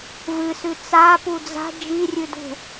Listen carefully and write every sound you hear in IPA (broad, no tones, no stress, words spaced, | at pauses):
vɨsʉ t͡sa pud͡za̤ d͡ʒirʲʉdṳ